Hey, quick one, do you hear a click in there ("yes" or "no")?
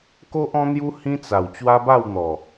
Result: no